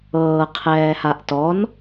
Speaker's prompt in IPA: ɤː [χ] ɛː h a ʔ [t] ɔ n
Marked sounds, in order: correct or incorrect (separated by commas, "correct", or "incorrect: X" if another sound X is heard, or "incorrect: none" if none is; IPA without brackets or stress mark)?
incorrect: qʰ, correct